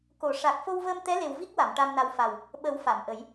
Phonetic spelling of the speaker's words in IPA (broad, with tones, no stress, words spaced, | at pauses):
ko˨˩˨ʂa˨˩k̚ fo˧wvəː˧mt̪ɛ˧˥le˨˩w vi˦˥k̚wa˨˩˨m ʈa˧mna˧w fa˨˩w | ɓə˨˩˦w fa˨˩˨mʔə˨˩˦j